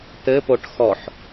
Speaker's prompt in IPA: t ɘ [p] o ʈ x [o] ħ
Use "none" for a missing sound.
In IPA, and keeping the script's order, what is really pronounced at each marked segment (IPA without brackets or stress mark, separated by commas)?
p, ɔ